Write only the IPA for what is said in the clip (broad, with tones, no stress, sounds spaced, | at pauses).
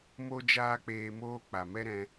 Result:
m o˦ d͡ʒ aː˦ k͡p eː˧ m oː˦ k͡p a˨ m ɛ˦ ɾ ɛ̃˧